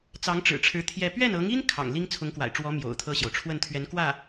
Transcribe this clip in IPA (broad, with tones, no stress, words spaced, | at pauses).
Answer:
t͡sɑ˧˥ŋʈ͡ʂɻ̩˨˩ʈ͡ʂʰɻ̩˧˥ t̪ʰjɛ˥˧ pɥɛ˥˩nɤ˧˥ŋi˥n kʰɑ̰˨˩ŋli˥ŋ t͡sʰʊ˧˥ŋkwa̰˨˩ɪ̯ʈ͡ʂwɔ˧˥ mjo̰˨˩ʊ̯t̪ʰɤ˥˩ɕjo˩ʊ̯ ʈ͡ʂʰwə˥˩nt̪ʰɥɛ˧˥nkwä˥˩